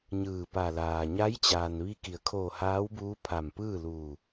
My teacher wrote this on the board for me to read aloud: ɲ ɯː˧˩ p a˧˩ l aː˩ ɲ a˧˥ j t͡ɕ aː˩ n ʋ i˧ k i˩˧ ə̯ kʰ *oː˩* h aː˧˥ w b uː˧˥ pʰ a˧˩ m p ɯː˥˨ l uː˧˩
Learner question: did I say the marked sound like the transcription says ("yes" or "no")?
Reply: no